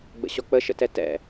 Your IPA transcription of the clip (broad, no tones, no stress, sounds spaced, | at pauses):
ɡ͡b ə̰ ɕ ɔ k͡p ə ʃ ə̰ t ɛ t ɛ̰